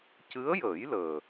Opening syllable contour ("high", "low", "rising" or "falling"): rising